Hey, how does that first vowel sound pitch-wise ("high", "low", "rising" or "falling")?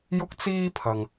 high